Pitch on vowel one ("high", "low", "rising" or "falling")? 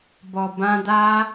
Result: low